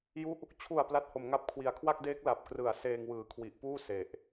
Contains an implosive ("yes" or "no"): no